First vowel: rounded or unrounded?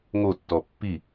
rounded